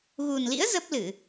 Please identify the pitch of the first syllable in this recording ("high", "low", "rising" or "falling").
low